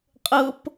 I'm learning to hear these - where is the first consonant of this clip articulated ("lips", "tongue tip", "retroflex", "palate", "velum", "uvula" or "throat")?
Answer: uvula